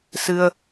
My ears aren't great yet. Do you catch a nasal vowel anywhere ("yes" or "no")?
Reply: no